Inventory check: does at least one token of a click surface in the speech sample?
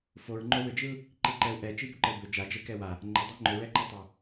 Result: yes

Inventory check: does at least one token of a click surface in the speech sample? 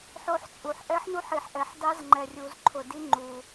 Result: yes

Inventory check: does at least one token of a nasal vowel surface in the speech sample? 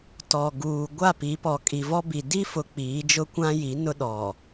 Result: yes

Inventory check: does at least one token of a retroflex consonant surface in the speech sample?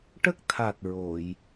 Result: yes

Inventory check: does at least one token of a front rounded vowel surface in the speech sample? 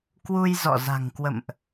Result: no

